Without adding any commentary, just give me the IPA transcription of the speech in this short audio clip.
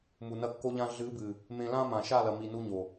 mu˨nɐ˧kːo˧ʎã˧ ɮɨ˨˦bɨ˨ | mẽ˧lã˦ mã˨ʃa˦˨lɐ˨mi˨ nu˧ɲo˨

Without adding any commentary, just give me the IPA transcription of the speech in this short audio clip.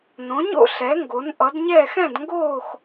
nõ˨˦ɲo̰˥˧ ɬɛ˨˦ŋɡo˨˦n ʔʌ˨˦dɲɛː˥˧x ɛ̃˥˧dŋɡoː˥˧x

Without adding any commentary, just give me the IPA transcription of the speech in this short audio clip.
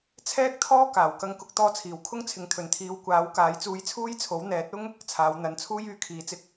t͡sʰɛː˥k̚t̪ʰɔː˥ kaː˨˩w kɐ˧ŋkʊ˧k̚ t̪ɔː˧t͡sʰiː˨˩w kʰʊ˥ŋt͡sʰɪ˨ŋ t̪ʰɵ˨˩nt̪ʰiː˨˧w kʷaː˨˥wkaː˨˧j t͡suː˧jt͡sʰuː˥jt͡sʰo˨˥w n̪ɛː˨˥t̚ʊ˥ŋ | t͡sʰaː˨˧wn̪ɐ˨˧nt͡sʰuː˥j yː˨˧kʰiː˨˥t͡sɪ˧k̚

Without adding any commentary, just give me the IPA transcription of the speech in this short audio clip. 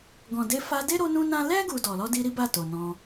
ɡɔ̃˨de˧ fa˧de˦ ɾo˦nũ˦nã˦ lɛ˦ ɡu˧dɔ˨ lɔ˧di˧ ɾi˦ba˦˨ to˨nɔ̃˧

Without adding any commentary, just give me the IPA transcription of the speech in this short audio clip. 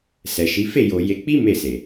sɛ˨ʃi˨˦ fe˦˨jo˨ je˧ k͡pi˦ me˦˨se˨

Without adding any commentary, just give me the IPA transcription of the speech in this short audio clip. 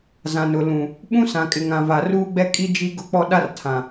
zã˨nʊ˨ lũ˨ | ɓũ˦sã˨kʼɪ˨ŋã˨ va˨ruː˦ɡ͡bɛ˦ kʼi˦d͡ʒi˦ ɡʊ˦k͡pɔ˦ ɗa˦rtʰã˨

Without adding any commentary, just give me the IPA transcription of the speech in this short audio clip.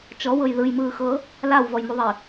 t͡ʃɔwɤj ðɯjmɯːxɤ | lawvɔjmuðˤi

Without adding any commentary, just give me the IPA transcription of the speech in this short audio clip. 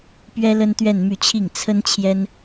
pɥɛ˥lə˥n t̪ɥɛ˥˧nmy˥˧ t͡ɕʰi˥˩ŋ t͡sʰə˥n t͡ɕʰjɛ˥n

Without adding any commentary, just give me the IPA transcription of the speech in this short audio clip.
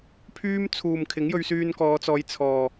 pʰyː˥m t͡sʰuː˨mkʰɪ˨˥ŋ jɵ˧ɥsyː˧nkɔː˨˧t͡sɔː˨˧j t͡sʰɔː˨

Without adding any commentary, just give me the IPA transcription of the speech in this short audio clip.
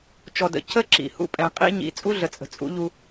t͡ʃɔ˨də̰˨ cə˦ ǁḭ˨hṵ˦ pʼɛ̃˨qʼḭ˦ ɲḭ˨˦ t͡sʼu˦ɮə˨t͡sʼə̤˨ t͡sʼṵ˦ʎu˦

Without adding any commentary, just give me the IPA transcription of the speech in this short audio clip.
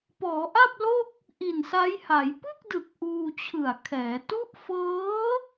pɔː˩˦ ʔa˥˩p̚lo˥˩k̚ | ʔi˨˩nsa˦˥jha˩˦j pɯ˥˩k̚dɯ˨˩k̚ ʔuː˧t͡ɕʰɯ˨˩a̯kʰɛː˩˦ tu˦˥ʔfɤː˦˥

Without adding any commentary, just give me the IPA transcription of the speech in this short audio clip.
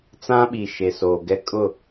t͡sã˦ ɓi˨ʃe˨so˨ ɡɛ˦kʼʊ˦˨

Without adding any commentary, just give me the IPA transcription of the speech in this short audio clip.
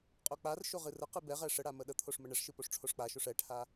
qʼok͡parʃo ʁɨrəqɨ bɛʁɛ ʂəɽa məɗət̪ʰoʂ məɳɛʂʃɨ poʂʈ͡ʂʰoʂk͡paʃoʂ ɛʈʰa

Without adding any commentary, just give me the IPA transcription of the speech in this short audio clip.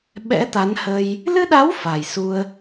ɓɛ̰˧˥t̪a˨˦nhə˧j | lɨ˧ɗa˨˦w fa˨˩jsu˧ə̯

